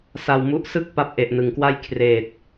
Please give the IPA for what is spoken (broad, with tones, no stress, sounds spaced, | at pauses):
s a˧ w m u˦˥ ʔ s ɯ˥˩ k̚ p a˥˩ p̚ ʔ e˨˩ ʔ n ɯ˩˦ ŋ k w a˥˩ j kʰ r eː˨˩ t̚